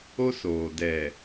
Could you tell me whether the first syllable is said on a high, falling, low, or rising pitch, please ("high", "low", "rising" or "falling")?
high